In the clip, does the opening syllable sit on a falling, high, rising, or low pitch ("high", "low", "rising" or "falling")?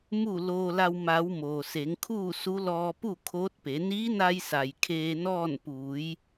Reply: falling